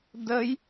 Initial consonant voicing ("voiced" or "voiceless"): voiced